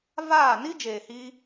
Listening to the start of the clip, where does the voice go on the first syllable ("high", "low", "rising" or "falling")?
falling